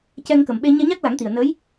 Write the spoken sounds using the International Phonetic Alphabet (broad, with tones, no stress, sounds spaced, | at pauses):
c ɛ˧ ŋ k ə˨˩ m ɓ e˧ ɲ ɛ˧ ɲ a˦˥ k̚ l a˨˩˦ ŋ t̪ i˨˩ ə̯ n ə˧˥ j